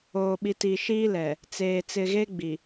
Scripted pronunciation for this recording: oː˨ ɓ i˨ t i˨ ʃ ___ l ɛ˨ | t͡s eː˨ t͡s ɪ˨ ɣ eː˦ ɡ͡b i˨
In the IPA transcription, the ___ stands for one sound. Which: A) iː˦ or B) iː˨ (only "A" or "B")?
A